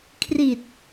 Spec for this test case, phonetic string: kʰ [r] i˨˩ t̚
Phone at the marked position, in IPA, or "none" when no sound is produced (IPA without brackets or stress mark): r